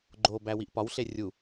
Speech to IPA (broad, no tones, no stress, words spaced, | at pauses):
ɡ͡ǃobæ wiʔpɒwɬe rʲu